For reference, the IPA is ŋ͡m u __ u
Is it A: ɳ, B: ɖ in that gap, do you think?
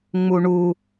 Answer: A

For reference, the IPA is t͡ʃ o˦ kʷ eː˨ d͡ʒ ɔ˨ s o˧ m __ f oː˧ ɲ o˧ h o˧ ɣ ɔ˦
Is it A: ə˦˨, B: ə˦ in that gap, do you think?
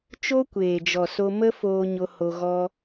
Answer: B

